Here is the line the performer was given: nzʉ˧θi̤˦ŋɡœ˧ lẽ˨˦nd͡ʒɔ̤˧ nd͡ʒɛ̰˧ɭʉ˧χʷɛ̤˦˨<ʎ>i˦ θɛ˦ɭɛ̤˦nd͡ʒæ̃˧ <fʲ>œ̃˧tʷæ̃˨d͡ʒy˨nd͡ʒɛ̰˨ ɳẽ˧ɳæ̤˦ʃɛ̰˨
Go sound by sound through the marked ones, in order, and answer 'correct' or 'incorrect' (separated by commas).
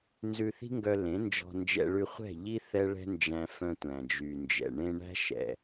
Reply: correct, incorrect